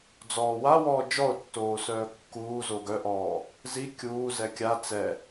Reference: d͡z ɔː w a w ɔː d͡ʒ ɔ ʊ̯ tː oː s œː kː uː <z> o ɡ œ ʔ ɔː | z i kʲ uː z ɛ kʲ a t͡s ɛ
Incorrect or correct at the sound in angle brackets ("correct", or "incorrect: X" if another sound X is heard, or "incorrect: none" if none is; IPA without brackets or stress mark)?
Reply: correct